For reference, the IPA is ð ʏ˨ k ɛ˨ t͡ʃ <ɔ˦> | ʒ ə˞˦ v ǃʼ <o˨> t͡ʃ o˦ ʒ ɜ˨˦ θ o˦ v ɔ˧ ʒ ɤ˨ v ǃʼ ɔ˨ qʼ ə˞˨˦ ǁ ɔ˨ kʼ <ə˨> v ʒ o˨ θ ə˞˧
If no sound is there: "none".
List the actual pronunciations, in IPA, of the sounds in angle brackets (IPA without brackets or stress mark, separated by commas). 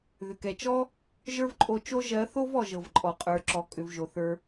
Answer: ɔ˦, o˧, ʏ˨